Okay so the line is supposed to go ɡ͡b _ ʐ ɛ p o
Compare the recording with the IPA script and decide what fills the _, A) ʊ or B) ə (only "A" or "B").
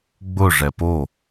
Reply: A